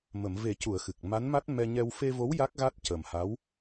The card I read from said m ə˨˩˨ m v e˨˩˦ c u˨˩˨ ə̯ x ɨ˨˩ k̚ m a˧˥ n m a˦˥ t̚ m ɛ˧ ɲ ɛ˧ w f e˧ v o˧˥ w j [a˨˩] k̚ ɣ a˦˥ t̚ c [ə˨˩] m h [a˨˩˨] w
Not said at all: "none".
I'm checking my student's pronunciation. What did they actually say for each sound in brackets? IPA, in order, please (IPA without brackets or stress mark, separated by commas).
a˦˥, ə˨˩, a˧˥